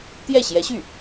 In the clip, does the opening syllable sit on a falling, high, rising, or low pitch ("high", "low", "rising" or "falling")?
falling